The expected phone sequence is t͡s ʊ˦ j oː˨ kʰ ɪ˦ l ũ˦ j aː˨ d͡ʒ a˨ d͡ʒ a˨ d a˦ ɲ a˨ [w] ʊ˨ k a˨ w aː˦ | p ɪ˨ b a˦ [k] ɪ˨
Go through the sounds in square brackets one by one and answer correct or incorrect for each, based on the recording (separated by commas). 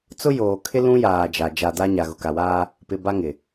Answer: incorrect, incorrect